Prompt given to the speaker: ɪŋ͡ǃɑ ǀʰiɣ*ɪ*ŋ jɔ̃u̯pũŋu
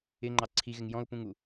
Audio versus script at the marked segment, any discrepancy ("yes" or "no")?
no